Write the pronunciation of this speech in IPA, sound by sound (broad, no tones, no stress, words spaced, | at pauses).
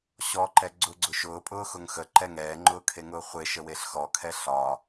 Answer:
ɕɔǃɛ ɡ͡ǀʊɡ͡ǀʊ ʃʊːpʼʊːxʊŋ xəǃɛ ŋɛːŋ͡ǃʊːkʰeŋʊː χʷeʃəweɬ xɔkʰɛ ɬɒ